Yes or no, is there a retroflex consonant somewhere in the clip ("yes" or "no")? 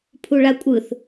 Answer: yes